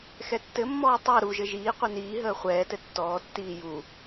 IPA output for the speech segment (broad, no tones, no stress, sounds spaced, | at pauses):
x ɛ tː ɘ mː ɔː tˤ ɜ ɾ u ʒ ɘ ʒ iː qʷ i n iː ɦ əː χʷ ɛː t ɘ tː ɔː tː iː j u